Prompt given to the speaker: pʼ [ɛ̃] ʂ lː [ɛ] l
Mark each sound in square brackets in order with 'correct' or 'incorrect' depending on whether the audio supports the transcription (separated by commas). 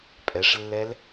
incorrect, correct